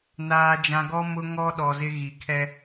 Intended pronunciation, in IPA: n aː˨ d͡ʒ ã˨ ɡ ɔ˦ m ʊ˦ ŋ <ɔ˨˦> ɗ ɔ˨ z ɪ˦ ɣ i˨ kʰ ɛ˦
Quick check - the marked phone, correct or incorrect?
incorrect